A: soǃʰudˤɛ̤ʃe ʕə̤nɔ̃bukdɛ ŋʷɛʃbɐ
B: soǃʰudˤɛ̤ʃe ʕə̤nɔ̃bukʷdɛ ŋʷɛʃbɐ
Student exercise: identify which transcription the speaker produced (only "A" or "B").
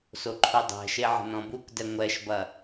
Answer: A